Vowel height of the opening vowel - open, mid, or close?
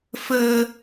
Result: mid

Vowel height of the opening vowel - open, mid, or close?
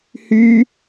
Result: close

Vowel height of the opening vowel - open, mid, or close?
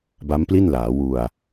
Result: open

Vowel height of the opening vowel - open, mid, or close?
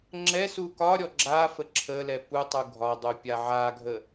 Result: mid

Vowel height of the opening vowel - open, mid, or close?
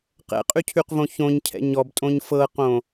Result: mid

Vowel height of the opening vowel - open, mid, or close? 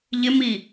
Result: close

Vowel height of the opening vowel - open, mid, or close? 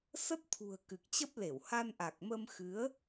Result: mid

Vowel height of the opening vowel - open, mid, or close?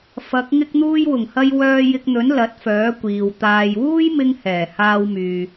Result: open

